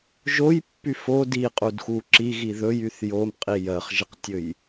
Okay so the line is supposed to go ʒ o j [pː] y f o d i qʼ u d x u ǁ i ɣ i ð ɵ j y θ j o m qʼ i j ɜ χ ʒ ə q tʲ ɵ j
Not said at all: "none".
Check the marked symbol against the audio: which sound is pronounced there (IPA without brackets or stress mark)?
pː